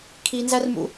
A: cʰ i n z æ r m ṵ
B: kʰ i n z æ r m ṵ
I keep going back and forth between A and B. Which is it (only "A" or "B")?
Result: B